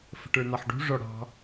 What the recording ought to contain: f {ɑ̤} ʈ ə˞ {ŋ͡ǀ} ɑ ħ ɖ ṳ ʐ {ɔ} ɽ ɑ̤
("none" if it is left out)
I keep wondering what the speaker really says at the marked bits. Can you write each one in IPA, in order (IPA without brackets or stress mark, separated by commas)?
ə̤, n̪, ɔ